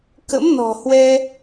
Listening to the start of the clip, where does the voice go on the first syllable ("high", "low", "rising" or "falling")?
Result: rising